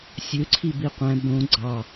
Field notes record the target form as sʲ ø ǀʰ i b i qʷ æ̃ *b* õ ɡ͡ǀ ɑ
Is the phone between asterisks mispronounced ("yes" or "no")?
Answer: no